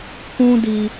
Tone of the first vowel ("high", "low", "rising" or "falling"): high